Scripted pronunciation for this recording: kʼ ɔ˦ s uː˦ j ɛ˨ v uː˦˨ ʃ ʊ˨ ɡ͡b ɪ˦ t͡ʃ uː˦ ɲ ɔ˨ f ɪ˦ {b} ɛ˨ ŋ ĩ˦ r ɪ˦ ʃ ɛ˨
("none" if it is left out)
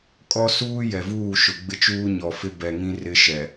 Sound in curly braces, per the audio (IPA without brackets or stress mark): b